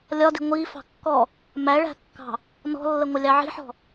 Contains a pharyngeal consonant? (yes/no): yes